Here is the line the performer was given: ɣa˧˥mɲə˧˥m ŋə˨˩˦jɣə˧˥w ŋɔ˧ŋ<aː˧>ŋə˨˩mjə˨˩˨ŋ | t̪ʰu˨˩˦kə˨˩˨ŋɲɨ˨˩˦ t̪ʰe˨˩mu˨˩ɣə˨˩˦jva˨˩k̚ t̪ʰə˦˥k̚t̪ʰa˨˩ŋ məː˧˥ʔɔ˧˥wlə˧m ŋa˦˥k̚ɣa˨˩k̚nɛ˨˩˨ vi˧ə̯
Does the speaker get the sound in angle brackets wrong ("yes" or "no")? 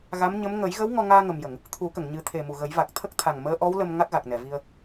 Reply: no